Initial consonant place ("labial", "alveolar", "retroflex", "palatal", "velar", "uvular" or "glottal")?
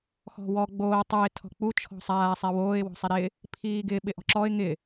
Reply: velar